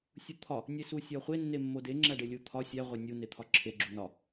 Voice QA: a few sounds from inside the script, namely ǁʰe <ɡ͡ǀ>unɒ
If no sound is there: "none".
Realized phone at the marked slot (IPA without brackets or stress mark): ɡ͡ǁ